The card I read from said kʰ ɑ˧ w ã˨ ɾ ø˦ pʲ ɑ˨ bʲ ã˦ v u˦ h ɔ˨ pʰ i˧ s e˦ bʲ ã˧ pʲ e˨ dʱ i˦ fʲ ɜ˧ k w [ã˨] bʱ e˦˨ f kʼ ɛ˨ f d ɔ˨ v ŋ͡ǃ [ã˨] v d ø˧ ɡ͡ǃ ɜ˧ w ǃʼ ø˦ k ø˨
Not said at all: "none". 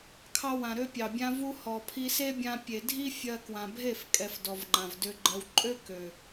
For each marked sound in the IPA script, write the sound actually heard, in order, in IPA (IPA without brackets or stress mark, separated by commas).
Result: ã˨, ã˨